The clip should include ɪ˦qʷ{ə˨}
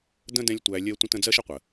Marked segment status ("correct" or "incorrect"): correct